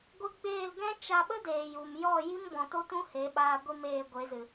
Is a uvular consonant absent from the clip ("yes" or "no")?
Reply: yes